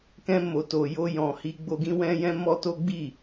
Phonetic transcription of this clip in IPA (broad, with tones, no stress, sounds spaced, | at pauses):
k ɛ̃˧ m o˨ t o˨ j o˧ j ɔ̃˨ h i˧ ɡ͡b o˧ ɡ ĩ˦ w ɛ̃˦ j ɛ̃˦ m ɔ˦ t o˦ ɡ͡b i˦˨